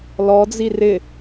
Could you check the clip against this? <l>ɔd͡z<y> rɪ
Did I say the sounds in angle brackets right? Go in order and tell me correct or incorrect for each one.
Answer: correct, incorrect

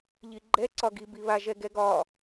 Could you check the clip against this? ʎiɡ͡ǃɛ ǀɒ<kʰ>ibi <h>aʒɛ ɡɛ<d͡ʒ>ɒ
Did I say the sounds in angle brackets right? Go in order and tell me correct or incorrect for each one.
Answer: incorrect, incorrect, incorrect

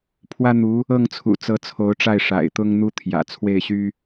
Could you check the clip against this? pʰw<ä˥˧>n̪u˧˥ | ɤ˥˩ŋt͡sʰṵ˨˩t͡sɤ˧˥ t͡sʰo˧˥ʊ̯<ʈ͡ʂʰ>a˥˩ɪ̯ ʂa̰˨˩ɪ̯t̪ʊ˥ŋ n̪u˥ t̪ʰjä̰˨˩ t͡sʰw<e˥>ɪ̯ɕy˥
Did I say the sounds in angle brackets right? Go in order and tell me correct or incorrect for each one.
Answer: incorrect, incorrect, incorrect

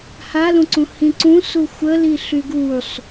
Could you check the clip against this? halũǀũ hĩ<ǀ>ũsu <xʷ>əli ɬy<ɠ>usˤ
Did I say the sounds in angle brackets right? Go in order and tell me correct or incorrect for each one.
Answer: correct, correct, incorrect

